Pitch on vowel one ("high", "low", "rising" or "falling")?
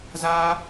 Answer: high